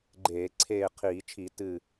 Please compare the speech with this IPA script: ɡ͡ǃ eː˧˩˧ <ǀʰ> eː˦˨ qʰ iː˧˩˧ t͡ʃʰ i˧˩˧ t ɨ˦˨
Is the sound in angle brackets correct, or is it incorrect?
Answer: correct